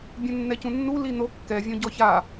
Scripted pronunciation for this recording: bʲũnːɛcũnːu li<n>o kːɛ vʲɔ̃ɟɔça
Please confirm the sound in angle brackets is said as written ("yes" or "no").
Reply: yes